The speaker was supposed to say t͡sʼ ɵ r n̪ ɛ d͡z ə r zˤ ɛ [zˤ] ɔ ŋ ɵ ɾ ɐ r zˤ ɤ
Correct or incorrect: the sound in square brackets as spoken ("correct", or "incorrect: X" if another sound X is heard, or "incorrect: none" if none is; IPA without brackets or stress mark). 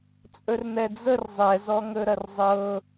incorrect: z